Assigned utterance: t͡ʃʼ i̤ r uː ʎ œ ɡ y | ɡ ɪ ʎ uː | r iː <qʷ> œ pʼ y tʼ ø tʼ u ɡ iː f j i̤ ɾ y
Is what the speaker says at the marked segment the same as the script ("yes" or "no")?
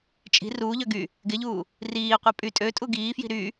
yes